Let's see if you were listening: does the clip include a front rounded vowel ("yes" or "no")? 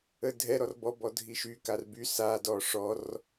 yes